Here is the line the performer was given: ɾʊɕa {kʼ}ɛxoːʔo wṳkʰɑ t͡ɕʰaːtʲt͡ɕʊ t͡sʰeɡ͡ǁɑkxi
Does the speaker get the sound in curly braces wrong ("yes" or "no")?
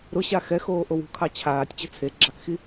yes